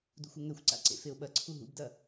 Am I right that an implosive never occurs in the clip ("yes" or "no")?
no